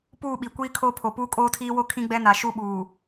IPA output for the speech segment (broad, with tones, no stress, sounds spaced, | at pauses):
p uː˦˨ ɓ i˨ kʷ iː˦ kʰ oː˦ pʰ o˨ p uː˦ kʼ oː˦ tʰ iː˦ w o˦ kʰ ĩ˦ ɡ͡b ɛ˦ n a˨ ʃ u˦ ɓ uː˨